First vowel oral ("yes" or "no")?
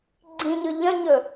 no